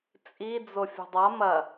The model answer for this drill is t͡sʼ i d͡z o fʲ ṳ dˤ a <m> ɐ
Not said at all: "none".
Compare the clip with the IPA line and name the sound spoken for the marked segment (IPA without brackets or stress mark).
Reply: m